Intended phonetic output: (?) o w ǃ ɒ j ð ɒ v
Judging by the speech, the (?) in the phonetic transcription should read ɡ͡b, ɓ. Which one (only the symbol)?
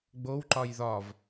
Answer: ɡ͡b